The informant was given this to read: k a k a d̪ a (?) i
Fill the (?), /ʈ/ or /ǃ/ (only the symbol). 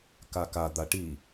ʈ